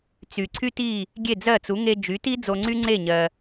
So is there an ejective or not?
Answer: no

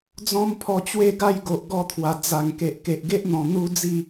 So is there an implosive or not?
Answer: no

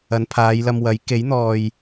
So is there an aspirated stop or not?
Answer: yes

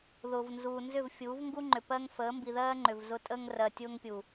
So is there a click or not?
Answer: yes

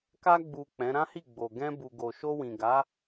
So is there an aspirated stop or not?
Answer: no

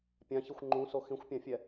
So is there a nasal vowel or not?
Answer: yes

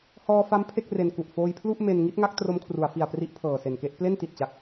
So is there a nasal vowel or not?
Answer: no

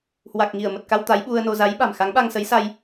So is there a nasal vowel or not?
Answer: no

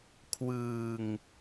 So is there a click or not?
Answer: no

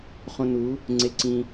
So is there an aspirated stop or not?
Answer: no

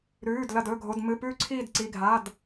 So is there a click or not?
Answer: yes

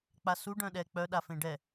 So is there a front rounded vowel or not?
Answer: yes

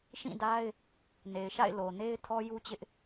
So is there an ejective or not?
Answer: no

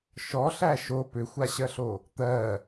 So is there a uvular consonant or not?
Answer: no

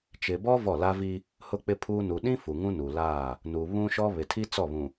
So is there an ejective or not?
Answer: no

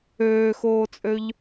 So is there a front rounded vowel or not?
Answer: yes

